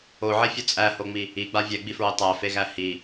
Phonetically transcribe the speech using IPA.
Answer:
oʕefʲo t͡sʼæhoŋ͡mi | iɡ͡ba vʲɛɡ͡bifɹe tˤæfeɣæ hi

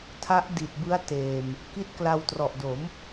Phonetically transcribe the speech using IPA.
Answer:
tʰa˦˥ʔ di˨˩t̚ bɯ˦˥a̯ teː˨˩m | ki˥˩t̚ kla˧w trɔ˨˩ʔdo˩˦m

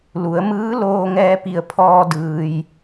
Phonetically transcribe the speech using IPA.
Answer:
lu˩˧ə̯mɯː˧˥ loː˧ŋɛː˧pi˧˩ə̯pʰɔː˧ dɯː˧j

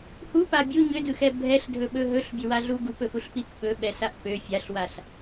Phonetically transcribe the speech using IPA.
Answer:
hupa bʲu ɲødɯxɛ bʱɛɬdʱɵɓɵ ɦɵɬbʲøwaɮu ɡupɵfuɬpip ɓɵɓɛsaʔ pø fʲaɬwaɬ

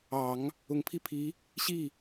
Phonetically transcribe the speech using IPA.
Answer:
ɑ˨˩˦ŋ | ʊ˨˩ŋpʰi˥˩pʰi˧˥ | ɕi˥˩

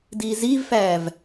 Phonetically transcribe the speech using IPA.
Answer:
diːziːvfæːv

